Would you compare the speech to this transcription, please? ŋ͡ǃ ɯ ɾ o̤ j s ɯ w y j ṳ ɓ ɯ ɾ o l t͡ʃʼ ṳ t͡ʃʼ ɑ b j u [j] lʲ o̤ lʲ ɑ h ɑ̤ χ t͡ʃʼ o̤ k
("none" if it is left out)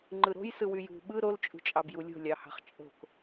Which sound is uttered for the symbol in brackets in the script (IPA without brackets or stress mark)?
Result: none